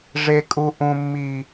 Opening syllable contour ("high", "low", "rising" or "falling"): high